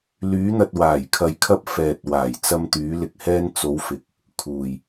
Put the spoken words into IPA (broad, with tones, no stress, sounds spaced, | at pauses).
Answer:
l yː˨˧ n̪ ɐ˨ t̚ w aː˨˩ j kʰ ɐ˨ j kʰ ɐ˧ p̚ f ɛː˨ t̚ w aː˨˩ j t͡s ɐ˧ m t̪ yː˨˧ l ɪ˨ k̚ h ɛː˧ n t͡s o˨˧ w f ɪ˨˥ k̚ | kʰ uː˨ j